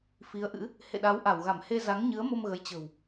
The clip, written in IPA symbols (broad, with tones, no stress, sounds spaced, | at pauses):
f i˨˦ ə̯ ʔ ɨ̰˧˥ | h ḛ˧˨ ɗ a˨˦ w ʔ a˧˩ w ɣ a˧˩ m h e˧ z a˨˦ ŋ ɲ ɨ˨˦ ə̯ m o˧ m ɣ ə˨˦ j t͡ɕ ə̤˨˩ w